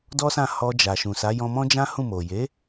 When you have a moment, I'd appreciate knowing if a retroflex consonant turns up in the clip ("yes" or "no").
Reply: no